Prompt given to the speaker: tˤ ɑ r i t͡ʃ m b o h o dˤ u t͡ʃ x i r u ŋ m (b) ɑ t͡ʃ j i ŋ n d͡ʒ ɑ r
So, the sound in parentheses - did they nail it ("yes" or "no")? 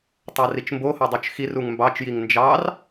yes